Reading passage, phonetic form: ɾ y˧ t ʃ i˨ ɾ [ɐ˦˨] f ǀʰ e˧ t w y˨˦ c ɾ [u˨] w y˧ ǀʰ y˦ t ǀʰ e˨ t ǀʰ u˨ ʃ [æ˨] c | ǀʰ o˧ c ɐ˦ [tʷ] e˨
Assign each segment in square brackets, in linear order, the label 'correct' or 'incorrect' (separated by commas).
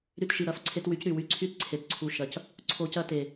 correct, incorrect, incorrect, incorrect